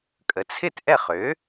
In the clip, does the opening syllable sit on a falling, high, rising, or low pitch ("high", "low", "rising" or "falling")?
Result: low